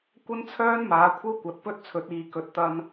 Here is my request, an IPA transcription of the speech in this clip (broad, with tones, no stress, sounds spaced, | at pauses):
kʷ ɐ˥ n t͡sʰ œː˥ n m aː˨˥ kʷʰ ɐ˥ w kʷ ɐ˨˥ t̚ p ɵ˥ t̚ t͡sʰ ɵ˨˥ t̚ iː˨˧ k ɵ˨˥ t̚ t̪ ɐ˧ n